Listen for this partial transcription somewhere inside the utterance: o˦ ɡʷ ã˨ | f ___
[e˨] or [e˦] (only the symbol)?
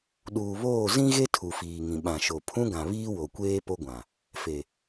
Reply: e˨